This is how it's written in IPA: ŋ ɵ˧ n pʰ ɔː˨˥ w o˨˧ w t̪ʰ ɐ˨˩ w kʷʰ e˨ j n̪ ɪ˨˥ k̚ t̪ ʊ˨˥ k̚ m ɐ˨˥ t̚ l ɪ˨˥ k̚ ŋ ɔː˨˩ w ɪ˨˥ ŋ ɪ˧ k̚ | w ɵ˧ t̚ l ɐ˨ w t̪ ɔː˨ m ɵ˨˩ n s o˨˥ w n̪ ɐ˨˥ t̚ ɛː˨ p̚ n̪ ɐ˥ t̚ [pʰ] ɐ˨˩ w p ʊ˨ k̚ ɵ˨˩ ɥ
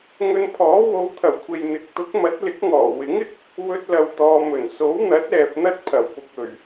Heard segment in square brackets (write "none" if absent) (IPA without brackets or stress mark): pʰ